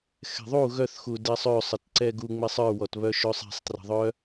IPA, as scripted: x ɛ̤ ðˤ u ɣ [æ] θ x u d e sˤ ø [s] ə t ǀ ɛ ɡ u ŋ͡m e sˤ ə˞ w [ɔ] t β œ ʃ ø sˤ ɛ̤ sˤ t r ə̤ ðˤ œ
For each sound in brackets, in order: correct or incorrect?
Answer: incorrect: œ, incorrect: sˤ, correct

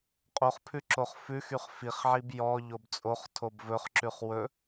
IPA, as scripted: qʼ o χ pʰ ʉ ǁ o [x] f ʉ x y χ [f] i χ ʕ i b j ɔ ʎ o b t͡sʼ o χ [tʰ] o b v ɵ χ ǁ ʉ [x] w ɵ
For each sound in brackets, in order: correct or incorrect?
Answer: incorrect: χ, correct, correct, incorrect: χ

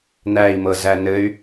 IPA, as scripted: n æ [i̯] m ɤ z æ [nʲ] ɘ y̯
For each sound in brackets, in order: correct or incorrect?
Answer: correct, incorrect: n

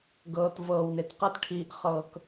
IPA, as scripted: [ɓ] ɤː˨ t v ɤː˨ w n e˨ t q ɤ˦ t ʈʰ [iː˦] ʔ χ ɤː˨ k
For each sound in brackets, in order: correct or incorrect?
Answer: incorrect: ɡ, incorrect: iː˨

